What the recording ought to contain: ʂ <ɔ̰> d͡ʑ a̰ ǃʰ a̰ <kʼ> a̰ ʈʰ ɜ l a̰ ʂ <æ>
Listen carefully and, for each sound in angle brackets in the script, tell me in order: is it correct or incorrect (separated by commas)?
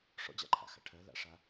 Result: correct, incorrect, incorrect